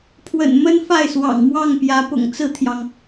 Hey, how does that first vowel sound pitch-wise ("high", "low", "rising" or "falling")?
low